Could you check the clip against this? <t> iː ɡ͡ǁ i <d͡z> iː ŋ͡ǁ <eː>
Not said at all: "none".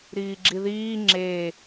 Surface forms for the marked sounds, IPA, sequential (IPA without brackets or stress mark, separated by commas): ɾ, ð, eː